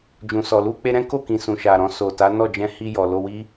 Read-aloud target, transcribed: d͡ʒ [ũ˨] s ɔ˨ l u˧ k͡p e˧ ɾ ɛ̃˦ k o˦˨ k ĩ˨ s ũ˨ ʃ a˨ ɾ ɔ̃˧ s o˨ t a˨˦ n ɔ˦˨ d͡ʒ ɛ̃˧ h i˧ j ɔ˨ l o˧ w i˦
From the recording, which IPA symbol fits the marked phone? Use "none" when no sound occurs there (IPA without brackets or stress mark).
ũ˨